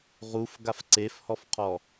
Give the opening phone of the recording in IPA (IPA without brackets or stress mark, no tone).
ʁ